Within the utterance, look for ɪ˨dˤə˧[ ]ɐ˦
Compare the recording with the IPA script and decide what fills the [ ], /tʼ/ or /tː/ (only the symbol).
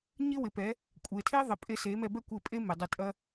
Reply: tʼ